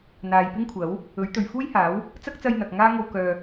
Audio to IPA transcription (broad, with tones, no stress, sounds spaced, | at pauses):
n̪ aː˨ j p ɪ˥ ŋ kʷʰ ɐ˨˥ w | ɵ˨˥ ɥ t̪ ɵ˨ ɥ f uː˥ j h aː˨˥ w | t͡s ɐ˥ k̚ t͡s ɐ˧ j n̪ ɐ˨ k̚ ŋ aː˥ ŋ o˧ w k œː˨